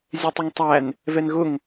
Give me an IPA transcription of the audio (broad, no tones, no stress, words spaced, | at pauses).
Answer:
zʲɛtˤʊŋtˤæn | vɛnɣʊŋ